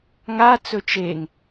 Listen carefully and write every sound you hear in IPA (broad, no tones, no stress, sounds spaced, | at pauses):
ŋ a t͡s ɵ t͡ʃ e ŋ